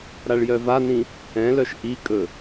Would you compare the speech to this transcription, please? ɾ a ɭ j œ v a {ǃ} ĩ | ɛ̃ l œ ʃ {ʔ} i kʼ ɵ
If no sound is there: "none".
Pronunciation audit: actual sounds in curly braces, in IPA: n, ʔ

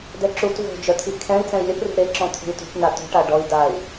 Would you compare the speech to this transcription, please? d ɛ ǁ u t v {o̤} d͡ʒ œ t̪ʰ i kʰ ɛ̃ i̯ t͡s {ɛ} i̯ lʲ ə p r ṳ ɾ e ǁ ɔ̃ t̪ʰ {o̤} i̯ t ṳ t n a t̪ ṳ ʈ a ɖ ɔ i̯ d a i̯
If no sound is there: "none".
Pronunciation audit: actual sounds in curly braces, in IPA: o̤, ɛ̃, ṳ

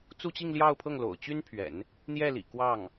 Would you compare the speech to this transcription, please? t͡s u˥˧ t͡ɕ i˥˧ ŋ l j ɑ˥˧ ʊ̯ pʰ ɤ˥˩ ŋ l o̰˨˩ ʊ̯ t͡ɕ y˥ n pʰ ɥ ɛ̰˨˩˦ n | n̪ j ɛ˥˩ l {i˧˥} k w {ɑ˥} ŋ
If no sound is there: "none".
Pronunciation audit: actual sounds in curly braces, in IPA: ḭ˨˩, ɑ˥˩

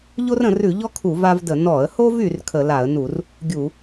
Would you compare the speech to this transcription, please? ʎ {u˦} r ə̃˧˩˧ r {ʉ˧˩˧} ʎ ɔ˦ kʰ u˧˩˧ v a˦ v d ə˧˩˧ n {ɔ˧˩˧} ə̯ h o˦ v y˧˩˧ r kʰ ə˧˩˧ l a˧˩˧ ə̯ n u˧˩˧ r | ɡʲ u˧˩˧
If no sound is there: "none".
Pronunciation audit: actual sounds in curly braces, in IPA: o˦, ʉ˧˩˧, ɔ˧˩˧

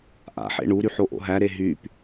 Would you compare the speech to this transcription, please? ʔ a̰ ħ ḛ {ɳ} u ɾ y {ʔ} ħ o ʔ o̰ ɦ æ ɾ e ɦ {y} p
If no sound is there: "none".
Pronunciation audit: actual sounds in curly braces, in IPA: ɳ, none, y

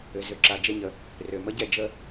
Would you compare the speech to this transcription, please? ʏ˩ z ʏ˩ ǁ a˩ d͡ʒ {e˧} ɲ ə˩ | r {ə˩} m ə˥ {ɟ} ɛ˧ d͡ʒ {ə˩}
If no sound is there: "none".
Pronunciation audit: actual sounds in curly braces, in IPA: e˧, ʏ˩, ɟ, ə˧

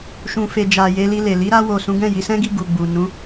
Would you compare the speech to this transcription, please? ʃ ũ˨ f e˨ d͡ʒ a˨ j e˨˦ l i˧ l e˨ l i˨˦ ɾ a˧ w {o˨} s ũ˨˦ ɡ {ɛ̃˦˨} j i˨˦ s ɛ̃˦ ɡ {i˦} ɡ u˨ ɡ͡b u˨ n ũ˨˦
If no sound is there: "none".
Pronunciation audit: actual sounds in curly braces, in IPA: o˨, ɛ̃˦˨, i˦˨

